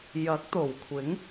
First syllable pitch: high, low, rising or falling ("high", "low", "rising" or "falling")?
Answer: rising